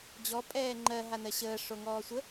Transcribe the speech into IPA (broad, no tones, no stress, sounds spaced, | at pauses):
d͡ʑ ɔ pʼ ɛː ŋ͡ǃ ɜ ɦ a n ɜ ɕ əː ʂ o ŋ ɔː sʷ ə